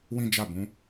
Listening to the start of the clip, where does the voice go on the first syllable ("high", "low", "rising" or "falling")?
high